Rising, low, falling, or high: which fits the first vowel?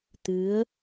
rising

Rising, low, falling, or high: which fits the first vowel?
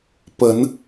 rising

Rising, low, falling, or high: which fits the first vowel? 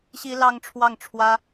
high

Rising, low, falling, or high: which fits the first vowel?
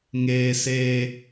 high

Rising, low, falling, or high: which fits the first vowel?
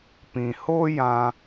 low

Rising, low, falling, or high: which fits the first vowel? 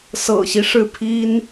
low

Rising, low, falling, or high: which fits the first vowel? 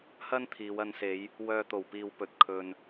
high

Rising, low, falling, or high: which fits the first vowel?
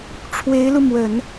rising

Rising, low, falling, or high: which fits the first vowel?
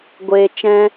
low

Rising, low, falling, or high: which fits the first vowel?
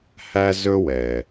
high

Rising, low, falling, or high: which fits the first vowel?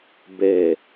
low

